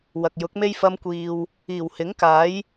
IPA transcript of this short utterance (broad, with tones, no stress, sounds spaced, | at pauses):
w ɐ˨ k̚ j ʊ˨˥ k̚ m e˥ j f ɐ˧ m kʷ iː˨ w | iː˨˩ w h ɪ˨˥ ŋ k aː˨˥ j